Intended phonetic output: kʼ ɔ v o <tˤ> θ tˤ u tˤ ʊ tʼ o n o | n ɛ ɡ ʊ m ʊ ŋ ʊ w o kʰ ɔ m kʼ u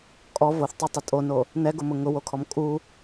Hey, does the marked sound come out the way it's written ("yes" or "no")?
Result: no